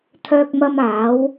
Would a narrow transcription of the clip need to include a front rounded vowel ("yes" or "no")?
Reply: yes